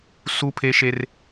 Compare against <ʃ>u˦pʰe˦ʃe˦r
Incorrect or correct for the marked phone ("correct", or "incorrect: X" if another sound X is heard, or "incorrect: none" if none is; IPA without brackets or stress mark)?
incorrect: s